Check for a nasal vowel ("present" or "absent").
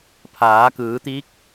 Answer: absent